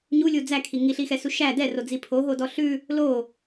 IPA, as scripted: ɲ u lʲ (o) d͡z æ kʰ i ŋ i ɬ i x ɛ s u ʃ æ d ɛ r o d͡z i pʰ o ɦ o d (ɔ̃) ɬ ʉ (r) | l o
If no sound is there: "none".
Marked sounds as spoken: u, ɔ, none

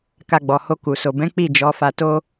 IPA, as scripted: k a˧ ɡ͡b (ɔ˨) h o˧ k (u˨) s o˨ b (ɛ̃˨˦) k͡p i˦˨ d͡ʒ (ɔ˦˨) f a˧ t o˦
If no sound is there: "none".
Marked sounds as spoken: ɔ˨, u˨, ɛ̃˨˦, ɔ˨˦

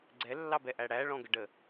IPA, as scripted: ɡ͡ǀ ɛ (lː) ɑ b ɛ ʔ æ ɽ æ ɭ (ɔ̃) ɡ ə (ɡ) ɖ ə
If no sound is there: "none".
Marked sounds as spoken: lː, ɔ̃, none

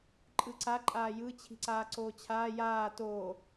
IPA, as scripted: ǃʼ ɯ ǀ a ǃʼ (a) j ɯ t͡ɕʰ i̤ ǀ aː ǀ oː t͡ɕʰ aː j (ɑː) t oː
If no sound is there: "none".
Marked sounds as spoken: aː, aː

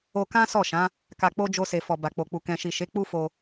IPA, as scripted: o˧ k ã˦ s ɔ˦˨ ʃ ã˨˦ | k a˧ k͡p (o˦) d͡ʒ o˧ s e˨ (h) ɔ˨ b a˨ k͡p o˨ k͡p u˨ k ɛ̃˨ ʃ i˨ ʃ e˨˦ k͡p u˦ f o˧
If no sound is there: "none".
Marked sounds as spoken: o˦, f

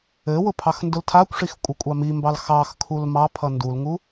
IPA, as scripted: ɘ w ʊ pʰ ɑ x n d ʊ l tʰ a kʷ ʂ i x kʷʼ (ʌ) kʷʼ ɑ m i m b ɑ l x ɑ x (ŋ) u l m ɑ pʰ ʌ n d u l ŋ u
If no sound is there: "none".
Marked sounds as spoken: ʌ, kʰ

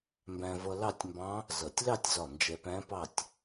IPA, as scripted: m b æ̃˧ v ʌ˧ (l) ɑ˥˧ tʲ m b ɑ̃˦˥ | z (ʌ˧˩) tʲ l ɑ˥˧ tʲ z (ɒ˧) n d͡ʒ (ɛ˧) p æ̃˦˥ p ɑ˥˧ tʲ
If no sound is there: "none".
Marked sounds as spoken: l, ʌ˧˩, ɒ˧˩, ɛ˧

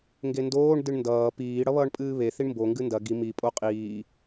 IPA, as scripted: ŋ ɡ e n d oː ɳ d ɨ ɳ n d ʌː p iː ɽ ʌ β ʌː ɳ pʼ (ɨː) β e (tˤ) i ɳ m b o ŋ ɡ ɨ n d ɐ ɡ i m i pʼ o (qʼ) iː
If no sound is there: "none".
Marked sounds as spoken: ɨː, θ, qʼ

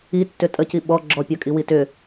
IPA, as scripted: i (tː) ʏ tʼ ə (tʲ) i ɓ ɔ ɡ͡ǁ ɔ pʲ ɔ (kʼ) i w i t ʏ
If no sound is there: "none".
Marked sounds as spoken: tː, c, kʼ

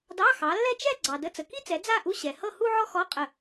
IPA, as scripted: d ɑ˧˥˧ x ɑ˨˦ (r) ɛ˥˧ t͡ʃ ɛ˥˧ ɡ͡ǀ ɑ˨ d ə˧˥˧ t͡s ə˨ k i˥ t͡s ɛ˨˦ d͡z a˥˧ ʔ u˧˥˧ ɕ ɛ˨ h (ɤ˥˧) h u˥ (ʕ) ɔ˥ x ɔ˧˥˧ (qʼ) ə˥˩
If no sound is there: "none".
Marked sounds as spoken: lː, ɤ˥˧, ʕ, qʼ

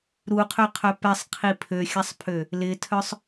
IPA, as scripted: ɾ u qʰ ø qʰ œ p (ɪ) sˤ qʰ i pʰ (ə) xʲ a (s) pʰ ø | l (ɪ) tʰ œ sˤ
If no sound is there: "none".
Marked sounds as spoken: ɛ, ø, sˤ, ɪ

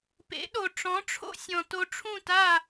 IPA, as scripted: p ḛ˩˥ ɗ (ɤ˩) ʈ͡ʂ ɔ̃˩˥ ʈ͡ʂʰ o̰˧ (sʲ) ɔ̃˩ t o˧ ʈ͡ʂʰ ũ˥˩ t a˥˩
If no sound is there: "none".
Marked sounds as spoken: o˩, sʲ

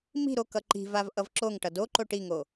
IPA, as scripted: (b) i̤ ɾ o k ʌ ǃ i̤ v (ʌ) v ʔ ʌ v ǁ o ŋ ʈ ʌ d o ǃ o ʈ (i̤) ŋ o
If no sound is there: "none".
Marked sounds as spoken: m, a, i

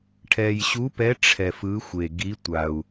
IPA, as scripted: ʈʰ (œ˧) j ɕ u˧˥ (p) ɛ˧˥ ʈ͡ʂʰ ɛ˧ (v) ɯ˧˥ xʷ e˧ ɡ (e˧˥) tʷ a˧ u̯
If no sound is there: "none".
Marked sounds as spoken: ɛ˧, p, f, i˧˥

